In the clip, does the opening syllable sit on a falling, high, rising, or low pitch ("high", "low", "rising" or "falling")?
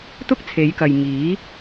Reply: high